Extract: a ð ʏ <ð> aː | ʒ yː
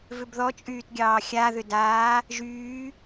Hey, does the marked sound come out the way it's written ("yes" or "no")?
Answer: no